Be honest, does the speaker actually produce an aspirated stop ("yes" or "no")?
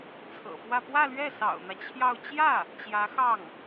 yes